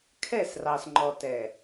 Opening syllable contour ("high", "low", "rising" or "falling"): falling